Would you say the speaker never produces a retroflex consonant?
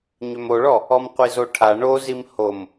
no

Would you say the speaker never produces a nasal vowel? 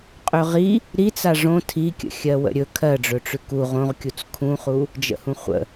no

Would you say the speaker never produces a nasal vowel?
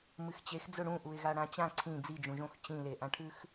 no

